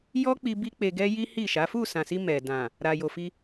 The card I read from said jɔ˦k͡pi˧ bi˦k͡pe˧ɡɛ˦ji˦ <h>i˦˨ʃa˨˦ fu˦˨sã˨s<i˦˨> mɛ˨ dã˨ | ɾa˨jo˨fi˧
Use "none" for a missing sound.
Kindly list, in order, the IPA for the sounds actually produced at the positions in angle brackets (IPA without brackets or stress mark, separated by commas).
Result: h, i˧